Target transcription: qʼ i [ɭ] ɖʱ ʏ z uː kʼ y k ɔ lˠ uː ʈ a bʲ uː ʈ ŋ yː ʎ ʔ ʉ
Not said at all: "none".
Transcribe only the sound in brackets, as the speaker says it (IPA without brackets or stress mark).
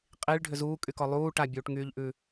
ɭ